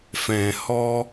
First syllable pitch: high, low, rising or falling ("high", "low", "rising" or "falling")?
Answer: low